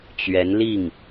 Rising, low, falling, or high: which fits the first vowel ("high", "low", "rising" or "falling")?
rising